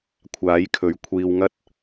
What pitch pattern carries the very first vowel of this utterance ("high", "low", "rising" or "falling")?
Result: rising